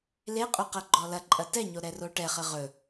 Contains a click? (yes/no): yes